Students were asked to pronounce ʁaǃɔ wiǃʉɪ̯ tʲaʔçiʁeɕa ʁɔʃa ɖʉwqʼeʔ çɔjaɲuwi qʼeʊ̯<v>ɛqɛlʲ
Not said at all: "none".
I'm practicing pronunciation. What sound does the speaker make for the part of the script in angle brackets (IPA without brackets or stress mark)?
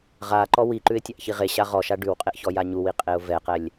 v